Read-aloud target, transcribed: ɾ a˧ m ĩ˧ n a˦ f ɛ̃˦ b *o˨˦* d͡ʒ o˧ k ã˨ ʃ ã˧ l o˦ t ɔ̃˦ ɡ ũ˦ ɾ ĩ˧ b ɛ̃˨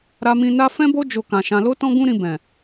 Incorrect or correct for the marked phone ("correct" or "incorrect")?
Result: incorrect